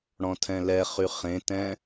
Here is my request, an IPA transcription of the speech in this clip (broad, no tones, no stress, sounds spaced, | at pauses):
ɽ ɔ̃ tʰ ɛ̃ l ɛ χ y χ ẽ t ɛ̃